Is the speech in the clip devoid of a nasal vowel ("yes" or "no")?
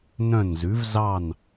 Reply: no